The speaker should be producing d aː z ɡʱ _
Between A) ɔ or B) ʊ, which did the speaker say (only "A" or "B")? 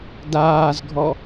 A